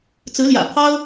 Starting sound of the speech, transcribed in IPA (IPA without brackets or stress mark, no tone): t͡s